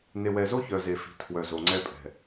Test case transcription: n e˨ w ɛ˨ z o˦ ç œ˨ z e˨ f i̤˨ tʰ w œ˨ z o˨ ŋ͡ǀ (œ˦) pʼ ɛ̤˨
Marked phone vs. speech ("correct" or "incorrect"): incorrect